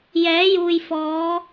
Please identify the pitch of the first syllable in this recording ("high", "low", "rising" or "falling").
rising